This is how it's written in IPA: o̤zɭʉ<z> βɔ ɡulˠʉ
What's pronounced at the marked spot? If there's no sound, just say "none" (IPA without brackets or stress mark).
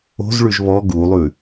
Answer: ʒ